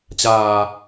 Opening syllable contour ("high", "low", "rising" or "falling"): low